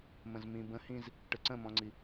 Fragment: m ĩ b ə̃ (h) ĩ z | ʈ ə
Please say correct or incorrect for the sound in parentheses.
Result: correct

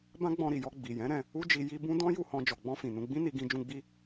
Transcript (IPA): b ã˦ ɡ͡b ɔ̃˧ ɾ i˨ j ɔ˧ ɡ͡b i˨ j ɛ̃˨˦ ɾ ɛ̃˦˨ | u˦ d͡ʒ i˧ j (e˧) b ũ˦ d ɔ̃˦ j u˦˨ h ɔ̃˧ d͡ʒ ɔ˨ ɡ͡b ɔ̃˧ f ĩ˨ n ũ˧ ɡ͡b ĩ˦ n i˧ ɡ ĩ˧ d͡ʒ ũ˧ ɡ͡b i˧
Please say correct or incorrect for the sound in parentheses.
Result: incorrect: i˧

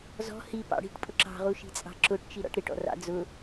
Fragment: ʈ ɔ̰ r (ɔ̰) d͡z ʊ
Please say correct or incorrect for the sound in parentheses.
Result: incorrect: ɑ̰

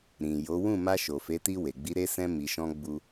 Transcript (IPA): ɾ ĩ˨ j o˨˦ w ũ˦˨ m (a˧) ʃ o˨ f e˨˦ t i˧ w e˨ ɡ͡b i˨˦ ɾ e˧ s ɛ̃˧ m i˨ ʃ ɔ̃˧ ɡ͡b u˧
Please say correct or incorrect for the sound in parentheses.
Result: correct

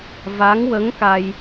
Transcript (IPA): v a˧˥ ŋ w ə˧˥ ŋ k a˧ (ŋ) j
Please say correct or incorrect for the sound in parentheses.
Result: incorrect: none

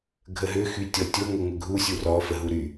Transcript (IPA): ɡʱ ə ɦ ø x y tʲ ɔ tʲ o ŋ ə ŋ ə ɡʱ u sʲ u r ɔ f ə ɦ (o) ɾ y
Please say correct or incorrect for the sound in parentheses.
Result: incorrect: u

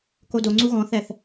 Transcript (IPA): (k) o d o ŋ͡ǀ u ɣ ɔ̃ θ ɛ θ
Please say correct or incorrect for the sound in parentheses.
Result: correct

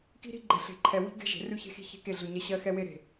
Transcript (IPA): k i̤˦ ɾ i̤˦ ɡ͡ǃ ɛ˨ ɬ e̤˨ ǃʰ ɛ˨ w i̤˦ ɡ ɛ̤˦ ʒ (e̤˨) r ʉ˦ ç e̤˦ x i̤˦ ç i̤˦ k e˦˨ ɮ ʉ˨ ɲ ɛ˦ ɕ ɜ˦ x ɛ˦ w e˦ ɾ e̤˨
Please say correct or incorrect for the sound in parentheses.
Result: correct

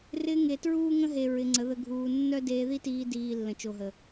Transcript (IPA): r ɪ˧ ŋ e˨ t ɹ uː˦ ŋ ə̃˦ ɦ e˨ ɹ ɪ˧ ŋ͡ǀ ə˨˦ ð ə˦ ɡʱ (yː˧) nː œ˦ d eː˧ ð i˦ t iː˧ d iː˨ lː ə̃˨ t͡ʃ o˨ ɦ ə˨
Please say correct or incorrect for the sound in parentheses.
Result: incorrect: uː˧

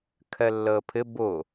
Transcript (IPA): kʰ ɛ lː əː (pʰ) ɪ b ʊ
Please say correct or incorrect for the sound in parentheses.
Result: correct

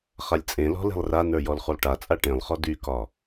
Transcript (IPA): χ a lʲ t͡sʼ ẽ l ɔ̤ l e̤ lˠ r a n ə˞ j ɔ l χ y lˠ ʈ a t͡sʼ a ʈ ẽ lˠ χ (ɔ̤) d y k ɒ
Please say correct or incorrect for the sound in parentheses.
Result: incorrect: ɔ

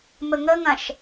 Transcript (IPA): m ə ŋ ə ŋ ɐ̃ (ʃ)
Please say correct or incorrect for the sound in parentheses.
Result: correct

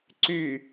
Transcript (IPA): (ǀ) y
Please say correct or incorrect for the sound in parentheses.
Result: correct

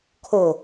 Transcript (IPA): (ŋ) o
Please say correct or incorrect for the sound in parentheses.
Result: incorrect: kʰ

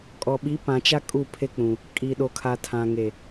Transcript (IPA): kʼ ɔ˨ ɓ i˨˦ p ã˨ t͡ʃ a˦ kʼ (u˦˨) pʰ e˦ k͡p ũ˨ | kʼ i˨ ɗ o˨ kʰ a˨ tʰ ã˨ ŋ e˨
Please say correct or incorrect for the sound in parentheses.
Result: correct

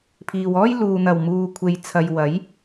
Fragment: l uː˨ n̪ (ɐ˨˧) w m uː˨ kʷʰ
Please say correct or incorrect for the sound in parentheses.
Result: incorrect: ɐ˨˩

